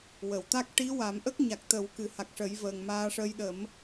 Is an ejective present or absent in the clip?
absent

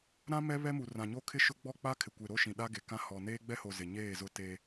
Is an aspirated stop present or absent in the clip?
present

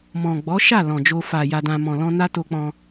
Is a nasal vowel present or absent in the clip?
present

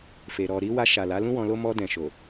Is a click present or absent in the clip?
absent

